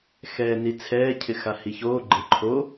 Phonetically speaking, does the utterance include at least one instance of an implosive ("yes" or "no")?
no